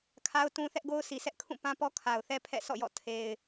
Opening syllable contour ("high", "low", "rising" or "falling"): high